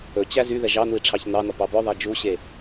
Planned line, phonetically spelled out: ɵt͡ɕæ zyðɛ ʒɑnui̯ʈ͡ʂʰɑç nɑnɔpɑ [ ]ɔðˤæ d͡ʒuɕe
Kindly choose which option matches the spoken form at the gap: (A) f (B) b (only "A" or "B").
B